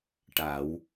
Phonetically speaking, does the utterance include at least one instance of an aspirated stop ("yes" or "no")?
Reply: no